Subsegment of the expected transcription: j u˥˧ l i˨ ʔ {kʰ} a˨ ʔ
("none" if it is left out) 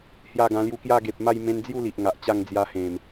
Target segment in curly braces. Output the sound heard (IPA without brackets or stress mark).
ŋ